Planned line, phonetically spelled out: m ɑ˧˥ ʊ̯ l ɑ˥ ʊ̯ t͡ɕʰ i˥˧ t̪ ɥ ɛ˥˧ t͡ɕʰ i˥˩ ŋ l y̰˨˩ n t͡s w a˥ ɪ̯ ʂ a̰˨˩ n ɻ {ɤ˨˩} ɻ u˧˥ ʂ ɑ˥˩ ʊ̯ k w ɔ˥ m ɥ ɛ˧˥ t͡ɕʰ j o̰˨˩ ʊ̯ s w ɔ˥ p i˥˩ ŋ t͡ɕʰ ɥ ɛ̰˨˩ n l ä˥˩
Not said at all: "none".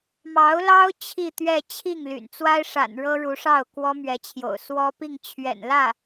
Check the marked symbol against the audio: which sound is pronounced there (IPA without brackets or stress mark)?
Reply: ɤ˥